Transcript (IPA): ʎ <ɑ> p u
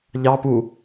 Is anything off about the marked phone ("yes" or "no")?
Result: no